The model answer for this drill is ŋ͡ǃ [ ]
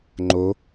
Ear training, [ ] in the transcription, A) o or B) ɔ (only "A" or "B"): A